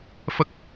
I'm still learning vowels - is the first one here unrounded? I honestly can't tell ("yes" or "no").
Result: yes